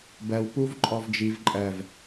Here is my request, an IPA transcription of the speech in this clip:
b ɜ w p u v ǃʼ ɔ v d͡ʒ i v ǃʼ ɜ v

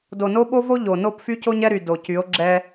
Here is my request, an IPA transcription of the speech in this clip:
d o˨ n o˦ ɓ o˦ v o˦ ʎ o˨ n o˦˨ p f y˦ c o˦ ɲ ɛ˦ ɾ y˨ d o˨ c y˨˦ o̯ ɡ͡ǁ ɛ˦

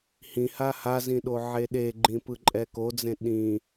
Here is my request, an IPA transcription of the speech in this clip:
h ĩ h a h a z ĩ ɗ o ʕ e ɗ e ɡ͡ǃ ĩ p ɯ ǃʼ ɛ k o d͡z ẽ ɗ ĩ

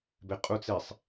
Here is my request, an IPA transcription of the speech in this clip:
b e qʼ u t͡s e sˤ

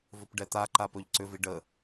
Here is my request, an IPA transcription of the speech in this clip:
v ɵ p ɖ ɛ t̪ a ǃ a p ɵ ʎ ǀ ʏ v i ɖ ə

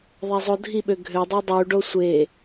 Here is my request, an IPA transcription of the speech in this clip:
ðˤ ɛ zˤ o dʱ i ɓ ø ɡʱ ø dˤ i dˤ u ɖ o sʷ e

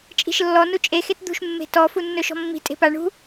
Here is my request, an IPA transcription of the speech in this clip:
t͡ʃʼ i̤ ʃ lː ɔ n u t͡ʃʼ e x e t d̪ ṳ ʃ mː e̤ t ɔ f u nː ɵ ʃ ɔ̤ mː i̤ tʼ e̤ p a ɳ ṳ

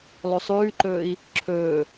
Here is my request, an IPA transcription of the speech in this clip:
lˠ ʉ sˤ ʉː ǃ ɵː i̯ | ǁʰ ɵː

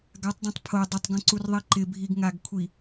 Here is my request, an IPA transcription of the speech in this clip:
ɡ a tˤ dˤ ẽ tˤ pʰ o dˤ ɪ tˤ ɡ õ ǀ u r ðˤ i ǃ ɪ bʱ i ɡ ŋ a ɡ kʷʰ i

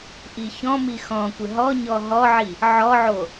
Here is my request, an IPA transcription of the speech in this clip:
ʔ i ç ɔ̃ m i x ɔ̃ kʷ ɪ ɦ ɔ ɲ ɔ ɦ ɔ ʕ i | ʕ ɔ ʕ o

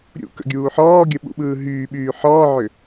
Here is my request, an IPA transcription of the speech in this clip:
ɾʲ ṵ k ə̰ ɡʲ uː ħ ɔː ɡʲ ə ɓ ṵ ɓ ɯː ɦ yː ɓ yː ħ ɔː ʕ ʏ

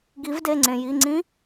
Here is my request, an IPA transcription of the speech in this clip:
ɡ i˨˦ v d e˩˧˩ ŋ͡ǀ ẽ˩ j i˩˧˩ ŋ͡ǀ ĩ˦˥

